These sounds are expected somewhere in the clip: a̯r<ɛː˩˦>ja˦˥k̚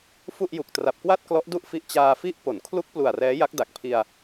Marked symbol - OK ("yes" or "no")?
no